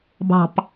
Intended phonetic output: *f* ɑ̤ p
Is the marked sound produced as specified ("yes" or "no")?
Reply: no